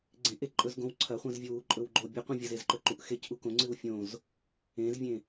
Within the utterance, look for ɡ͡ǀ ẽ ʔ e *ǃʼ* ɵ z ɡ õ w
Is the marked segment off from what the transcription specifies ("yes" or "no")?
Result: no